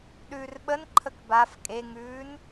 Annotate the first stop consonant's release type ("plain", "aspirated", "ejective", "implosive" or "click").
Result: implosive